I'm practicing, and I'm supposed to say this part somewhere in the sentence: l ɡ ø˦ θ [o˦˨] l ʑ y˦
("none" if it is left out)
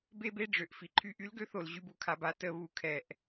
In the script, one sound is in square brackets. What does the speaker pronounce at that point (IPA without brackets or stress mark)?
o˨